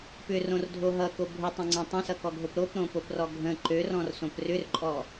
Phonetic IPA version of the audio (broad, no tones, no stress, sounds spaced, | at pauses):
p ʏ r õ r dʱ o ɦ ʌ k o bʱ ʊ tˤ ə̃ ŋ͡ǀ ɔ̃ tˤ ə̃ s ʌ k ɔ ɡʱ o p ɾ o p ɾ õ p o p r ɔ ɡʱ ə̃ ǃ ø r ɔ̃ r s õ p r ʏ r ǃʼ ɔ